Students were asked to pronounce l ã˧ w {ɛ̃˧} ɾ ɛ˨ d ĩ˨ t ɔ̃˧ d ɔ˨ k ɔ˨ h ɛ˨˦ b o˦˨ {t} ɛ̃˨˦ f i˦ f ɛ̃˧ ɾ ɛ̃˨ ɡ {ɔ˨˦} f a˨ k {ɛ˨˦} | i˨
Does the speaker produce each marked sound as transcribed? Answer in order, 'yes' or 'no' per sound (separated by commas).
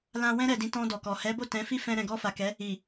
yes, yes, no, yes